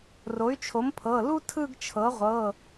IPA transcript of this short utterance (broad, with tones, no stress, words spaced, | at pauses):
ro˩˥y̯t͡ʃʰo˩˥mpʰɤ˩˧˩lu˥ tʰɯ˥˧ɡt͡ʃʰɤ˩˥ʁʷɤ˩˧˩